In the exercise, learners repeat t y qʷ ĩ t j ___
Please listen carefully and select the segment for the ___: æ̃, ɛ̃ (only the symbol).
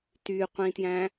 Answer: æ̃